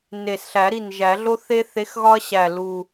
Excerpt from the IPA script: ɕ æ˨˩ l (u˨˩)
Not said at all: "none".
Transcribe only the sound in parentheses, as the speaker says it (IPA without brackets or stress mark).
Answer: u˨˩